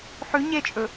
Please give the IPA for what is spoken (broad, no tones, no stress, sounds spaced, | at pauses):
ħ ʉ ɲ e t͡ʃʼ ɵ